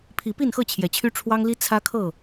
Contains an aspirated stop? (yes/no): yes